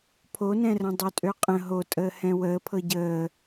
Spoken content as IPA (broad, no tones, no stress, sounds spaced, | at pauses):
pʰ o n ɛ̃ r ə̃ dˤ ø tʼ ø qʼ ə̃ ɦ o tʼ əː h ɛ̃ w əː pʰ ɤ ɟ əː